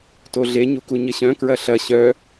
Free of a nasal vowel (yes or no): no